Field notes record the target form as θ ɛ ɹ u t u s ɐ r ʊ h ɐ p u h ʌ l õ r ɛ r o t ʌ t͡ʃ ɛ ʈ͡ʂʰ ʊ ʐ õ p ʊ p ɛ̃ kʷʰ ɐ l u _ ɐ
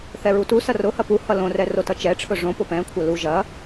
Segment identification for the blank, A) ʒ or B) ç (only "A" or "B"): A